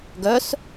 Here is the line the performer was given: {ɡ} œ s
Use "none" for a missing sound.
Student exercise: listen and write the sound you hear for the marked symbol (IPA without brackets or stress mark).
ɡ